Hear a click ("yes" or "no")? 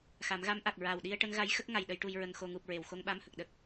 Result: no